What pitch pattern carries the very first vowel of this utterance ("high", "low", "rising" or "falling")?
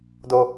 low